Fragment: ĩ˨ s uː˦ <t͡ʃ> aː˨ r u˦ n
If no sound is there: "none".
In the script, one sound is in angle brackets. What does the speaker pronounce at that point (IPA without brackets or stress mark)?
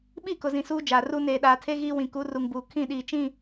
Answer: d͡ʒ